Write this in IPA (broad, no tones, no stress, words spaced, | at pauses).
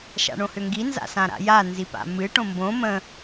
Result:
ʃa̰ɳõhʏŋɡi nza̰sãɾa̰ja nzipa̰mɨ ʈõmbõ mə̃